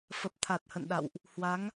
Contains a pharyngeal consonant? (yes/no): no